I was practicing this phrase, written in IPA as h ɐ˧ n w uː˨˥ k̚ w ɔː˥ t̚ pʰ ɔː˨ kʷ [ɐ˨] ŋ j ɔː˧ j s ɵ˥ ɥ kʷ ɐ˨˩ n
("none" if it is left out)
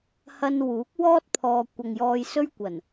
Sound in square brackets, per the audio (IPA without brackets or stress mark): ɐ˨